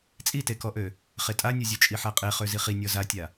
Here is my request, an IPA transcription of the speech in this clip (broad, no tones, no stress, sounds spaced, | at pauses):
t͡sʼ i t e k ɔ ʔ ø | χ e tʼ a nʲ ɔ zʲ ø t͡ʃʼ i ħ a qʼ e χ ø z i χ i nʲ ɔ z a tʲ a